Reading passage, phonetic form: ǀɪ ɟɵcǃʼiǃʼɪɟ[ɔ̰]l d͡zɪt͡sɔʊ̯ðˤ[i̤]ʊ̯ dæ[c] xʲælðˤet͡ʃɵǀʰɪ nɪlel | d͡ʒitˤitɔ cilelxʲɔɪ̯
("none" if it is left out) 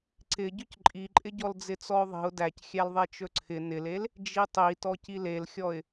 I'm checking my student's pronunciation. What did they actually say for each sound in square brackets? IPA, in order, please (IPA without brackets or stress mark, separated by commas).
ɔ, i̤, c